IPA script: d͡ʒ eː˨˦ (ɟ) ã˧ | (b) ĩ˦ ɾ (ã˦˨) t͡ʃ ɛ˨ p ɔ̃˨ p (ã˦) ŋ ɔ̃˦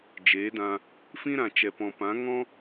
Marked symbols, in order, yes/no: no, no, no, no

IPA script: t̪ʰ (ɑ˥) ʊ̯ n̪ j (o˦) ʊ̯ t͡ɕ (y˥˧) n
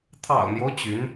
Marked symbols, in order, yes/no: no, yes, no

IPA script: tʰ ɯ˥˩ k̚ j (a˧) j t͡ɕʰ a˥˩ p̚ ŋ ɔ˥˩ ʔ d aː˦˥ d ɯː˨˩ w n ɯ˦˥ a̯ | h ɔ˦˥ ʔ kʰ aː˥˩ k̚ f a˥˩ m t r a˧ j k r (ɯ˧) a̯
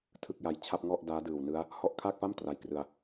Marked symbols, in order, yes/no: yes, yes

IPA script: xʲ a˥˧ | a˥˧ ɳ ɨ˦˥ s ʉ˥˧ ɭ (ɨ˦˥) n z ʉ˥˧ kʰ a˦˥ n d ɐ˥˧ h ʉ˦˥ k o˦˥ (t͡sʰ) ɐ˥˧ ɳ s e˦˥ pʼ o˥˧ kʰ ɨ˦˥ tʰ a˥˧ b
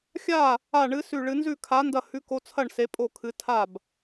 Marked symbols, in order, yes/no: yes, yes

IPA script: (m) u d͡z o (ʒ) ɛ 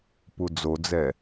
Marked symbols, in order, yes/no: no, no

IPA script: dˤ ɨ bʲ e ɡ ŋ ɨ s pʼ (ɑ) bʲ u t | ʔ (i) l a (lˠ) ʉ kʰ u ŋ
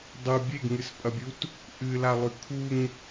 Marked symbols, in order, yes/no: no, no, yes

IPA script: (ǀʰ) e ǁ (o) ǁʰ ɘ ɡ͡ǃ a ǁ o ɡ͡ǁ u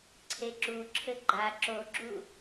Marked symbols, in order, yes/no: yes, no

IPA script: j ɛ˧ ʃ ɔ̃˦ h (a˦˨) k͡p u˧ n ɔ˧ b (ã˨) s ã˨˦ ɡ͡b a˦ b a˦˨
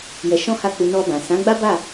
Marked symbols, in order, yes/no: yes, yes

